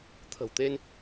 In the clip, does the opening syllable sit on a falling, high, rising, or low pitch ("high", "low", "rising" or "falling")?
low